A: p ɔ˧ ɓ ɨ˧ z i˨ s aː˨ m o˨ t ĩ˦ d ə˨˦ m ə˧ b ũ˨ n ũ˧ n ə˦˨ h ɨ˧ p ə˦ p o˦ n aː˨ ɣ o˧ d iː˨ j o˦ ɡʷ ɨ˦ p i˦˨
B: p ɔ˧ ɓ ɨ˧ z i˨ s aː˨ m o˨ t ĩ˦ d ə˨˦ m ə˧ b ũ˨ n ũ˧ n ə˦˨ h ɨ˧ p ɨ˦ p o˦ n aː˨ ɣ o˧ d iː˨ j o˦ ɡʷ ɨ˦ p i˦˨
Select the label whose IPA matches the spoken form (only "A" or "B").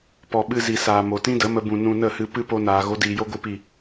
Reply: B